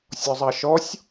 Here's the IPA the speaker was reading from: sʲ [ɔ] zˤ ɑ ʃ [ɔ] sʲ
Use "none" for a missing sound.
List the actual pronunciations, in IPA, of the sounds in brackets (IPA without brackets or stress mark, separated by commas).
ɔ, ɔ